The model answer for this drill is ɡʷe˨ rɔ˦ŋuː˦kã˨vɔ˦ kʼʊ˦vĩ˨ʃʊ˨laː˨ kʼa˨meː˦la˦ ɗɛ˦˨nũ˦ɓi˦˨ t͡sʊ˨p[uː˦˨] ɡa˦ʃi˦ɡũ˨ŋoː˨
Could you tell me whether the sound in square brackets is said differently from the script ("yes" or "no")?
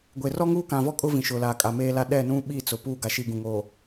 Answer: no